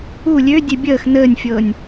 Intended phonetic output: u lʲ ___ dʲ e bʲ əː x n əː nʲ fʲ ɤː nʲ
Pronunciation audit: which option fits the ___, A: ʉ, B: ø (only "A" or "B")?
B